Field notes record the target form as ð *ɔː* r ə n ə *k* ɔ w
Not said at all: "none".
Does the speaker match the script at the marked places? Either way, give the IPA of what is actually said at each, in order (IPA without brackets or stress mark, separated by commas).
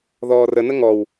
ɔː, ŋ